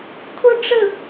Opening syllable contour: high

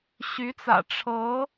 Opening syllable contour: rising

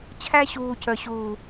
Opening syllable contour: high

